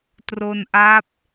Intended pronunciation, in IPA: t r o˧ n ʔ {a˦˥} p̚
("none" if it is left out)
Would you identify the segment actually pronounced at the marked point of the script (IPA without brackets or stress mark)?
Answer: a˦˥